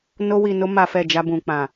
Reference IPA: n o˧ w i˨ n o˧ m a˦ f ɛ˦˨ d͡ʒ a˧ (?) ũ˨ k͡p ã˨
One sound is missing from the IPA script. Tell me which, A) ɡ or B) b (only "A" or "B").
B